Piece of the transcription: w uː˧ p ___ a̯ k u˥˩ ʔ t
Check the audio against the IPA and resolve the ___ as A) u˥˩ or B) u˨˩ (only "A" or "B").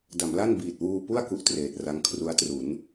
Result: A